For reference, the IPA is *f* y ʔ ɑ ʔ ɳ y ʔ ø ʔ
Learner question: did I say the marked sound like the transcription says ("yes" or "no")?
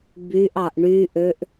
no